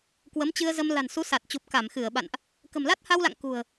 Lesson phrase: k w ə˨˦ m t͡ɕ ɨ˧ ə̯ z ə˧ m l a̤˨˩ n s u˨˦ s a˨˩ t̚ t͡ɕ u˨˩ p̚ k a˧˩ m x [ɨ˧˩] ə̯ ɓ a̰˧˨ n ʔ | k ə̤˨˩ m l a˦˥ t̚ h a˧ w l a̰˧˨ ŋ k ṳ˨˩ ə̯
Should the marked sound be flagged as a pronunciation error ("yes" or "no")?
no